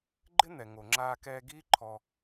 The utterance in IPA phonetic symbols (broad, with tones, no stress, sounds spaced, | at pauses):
ɡ͡ǃ ɪ˦ n̪ ɛ˨ ŋ o˨ ŋ͡ǁ aː˧ k ɛː˧ ɡ iː˦ ǃʰ ɔ˧